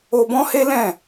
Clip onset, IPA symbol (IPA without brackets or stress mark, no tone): o